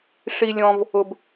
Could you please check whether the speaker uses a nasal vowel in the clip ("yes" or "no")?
yes